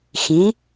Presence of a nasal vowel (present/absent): present